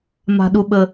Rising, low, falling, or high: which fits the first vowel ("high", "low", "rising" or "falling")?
high